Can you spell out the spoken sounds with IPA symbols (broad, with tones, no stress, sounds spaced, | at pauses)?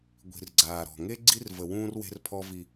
ɡʷ i̤˨ r ɡ͡ǀ aː˨ ɾ ɔ̤˨ ŋ e˦ ɡ͡ǀ i˦ r v ə˨ w ũː˦ r w e̤˦ r pʰ ɔ˦ v i˦